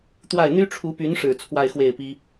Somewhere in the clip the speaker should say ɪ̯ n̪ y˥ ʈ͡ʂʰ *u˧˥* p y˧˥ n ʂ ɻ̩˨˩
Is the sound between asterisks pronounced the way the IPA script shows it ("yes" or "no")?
yes